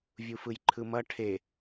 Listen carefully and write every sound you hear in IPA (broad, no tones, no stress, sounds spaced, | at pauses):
vʲ u f ɯ j ǃʰ ɯ m ʌ ʈʰ e